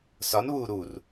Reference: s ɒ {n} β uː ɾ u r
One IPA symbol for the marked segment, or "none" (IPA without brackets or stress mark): n